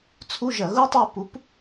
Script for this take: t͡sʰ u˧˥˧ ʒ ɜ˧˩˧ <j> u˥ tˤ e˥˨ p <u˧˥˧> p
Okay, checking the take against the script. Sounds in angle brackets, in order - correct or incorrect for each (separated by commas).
incorrect, incorrect